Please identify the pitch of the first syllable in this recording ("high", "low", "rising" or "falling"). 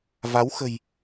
rising